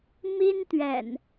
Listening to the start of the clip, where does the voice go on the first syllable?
high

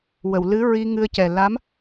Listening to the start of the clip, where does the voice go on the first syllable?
low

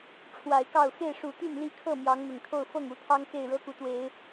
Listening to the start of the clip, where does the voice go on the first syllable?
low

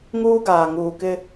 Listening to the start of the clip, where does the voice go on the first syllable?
high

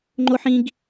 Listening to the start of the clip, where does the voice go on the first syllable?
high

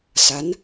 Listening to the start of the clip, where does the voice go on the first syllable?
rising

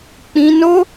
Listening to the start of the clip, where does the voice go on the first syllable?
high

